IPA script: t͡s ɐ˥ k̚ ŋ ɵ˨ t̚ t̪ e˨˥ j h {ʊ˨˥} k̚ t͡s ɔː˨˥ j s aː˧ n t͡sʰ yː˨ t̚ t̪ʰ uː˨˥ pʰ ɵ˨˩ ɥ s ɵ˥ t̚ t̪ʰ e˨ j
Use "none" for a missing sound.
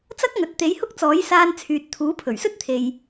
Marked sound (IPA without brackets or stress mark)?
ʊ˥